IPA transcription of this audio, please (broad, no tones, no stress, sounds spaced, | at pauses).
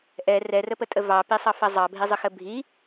ʔ ɛ r ɛ r ə p ə tʼ ə v ɑ p i sˤ ɑ f ɐ zˤ ɑ bʱ i zˤ ə x ə bʱ i